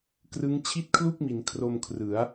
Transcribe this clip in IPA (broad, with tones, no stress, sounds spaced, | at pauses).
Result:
k r ɯ˦˥ ŋ t͡ɕʰ i˥˩ t̚ kʰ l u˥˩ k̚ m i˩˦ n kʰ r o˧ m kʰ r ɯ˩˦ a̯